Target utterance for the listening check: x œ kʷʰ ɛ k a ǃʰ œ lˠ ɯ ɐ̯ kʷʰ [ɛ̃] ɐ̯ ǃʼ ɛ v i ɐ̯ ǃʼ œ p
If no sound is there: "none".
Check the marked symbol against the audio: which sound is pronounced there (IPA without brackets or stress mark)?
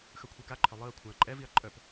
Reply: ɛ̃